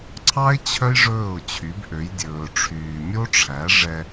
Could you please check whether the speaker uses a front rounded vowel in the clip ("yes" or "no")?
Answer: yes